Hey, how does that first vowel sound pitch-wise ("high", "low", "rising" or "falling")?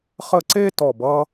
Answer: falling